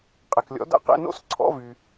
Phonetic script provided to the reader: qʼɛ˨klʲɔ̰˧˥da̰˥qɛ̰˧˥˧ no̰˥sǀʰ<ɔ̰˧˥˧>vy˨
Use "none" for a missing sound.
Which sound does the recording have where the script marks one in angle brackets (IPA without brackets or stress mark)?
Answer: ɔ̰˧˥˧